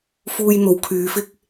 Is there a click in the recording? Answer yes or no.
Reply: no